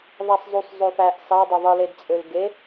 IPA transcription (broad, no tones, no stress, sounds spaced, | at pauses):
ðˤ æ sˤ zˤ y sˤ zˤ ø f æ ʔ s ɑ dˤ o ðˤ ɯ l e d t͡sʼ ø l ɡ e